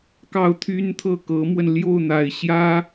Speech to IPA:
k ɑ˥˩ ʊ̯ t̪ʰ y˥ n t̪ʰ ɤ˥˩ k ɤ˧˥ m w ə˧ n l j o˥˩ ʊ̯ n̪ a˨˩ ɪ̯ ɕ j ä˥

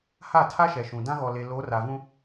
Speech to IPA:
h a˦˨ tʰ a˦ ʃ ɛ˨ ʃ ũ˨ d ã˦ ɣ ɔ˨ l e˨ l o˨˦ r a˨ v ũ˦

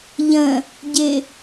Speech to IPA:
ʎ ə̃ | ɟ ɪ

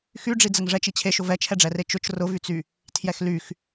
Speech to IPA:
x y ɖ͡ʐ i d͡z ə ŋ ʐ ɛ t͡ʃ i t͡ɕʰ e ʃ ʊ v ɛ t͡ʃʰ ɛ ɖ͡ʐ ɛ r e t͡ʃ ʊ t͡ʃ r ʊ v y t͡s y | tʰ j ɛ x l y x

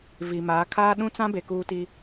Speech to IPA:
v i˨ m aː˨˦ kʰ aː˦ ɗ ũ˦ t͡s ã˦ b e˨ k uː˦ t i˦

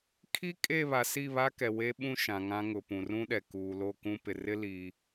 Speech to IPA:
kʰ i˦ kʼ e˦˨ β a˨ s i˦˨ β a˦ k ɛ˨ w e˦ ɓ ũ˦ ʃ ã˨ ŋ ã˦ ŋ ʊ˨ p ũ˨ r ũ˦ ɗ ɛ˨ k uː˨ l o˦˨ k ũ˦ p ɪ˨ r ɪ˦ l i˦

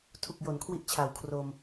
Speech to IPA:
tʰ u˨˩ k̚ j o˩˦ n kʰ w i˦˥ ʔ t͡ɕʰ a˩˦ w kʰ r o˧ m

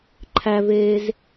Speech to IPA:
ǃʰ æ v eː z

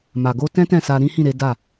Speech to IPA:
m a˨ ɡ o˧ t ɛ̃˦ t ɛ̃˦˨ s a˧ ɾ ĩ˦ h ĩ˦˨ ɾ e˨˦ d a˦˨

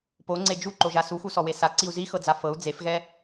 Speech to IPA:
p o ŋ͡ǀ e d͡ʒ u ǃ o ʒ a s u x u s ɔ w e s a ǀ i u̯ z i x ɤ d͡z a f ɤ u̯ d͡z e f ɣ ɛ

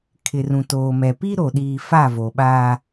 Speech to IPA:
kʰ ɪ˨ r ũ˨ t oː˨ m ɛ˨ p i˦ ɾ o˨ ɗ iː˨ f a˦˨ v o˨ ɓ aː˦

